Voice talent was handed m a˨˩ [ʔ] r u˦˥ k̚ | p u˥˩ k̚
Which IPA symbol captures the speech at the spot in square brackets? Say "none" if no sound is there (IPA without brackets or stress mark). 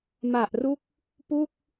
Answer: ʔ